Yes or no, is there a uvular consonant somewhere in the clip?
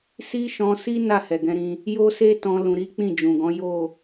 no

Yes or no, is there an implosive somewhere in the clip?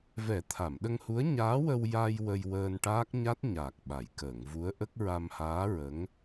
yes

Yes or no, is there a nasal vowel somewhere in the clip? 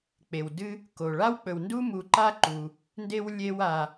no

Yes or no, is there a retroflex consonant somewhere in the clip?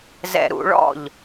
yes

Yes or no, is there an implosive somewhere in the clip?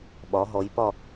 yes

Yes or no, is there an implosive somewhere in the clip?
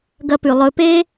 no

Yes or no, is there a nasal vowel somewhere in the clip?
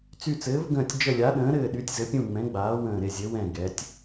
yes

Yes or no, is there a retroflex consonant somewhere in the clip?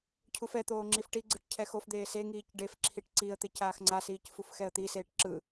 yes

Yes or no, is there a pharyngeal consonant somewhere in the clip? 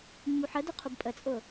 yes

